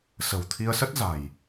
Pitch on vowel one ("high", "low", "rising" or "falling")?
low